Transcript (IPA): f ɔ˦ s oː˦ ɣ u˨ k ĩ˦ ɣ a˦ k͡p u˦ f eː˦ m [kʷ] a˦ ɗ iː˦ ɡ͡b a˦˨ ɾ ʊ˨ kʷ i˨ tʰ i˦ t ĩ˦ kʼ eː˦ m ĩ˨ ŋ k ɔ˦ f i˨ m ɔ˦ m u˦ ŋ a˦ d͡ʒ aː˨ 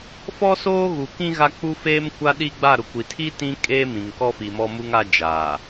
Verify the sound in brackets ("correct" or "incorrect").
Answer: correct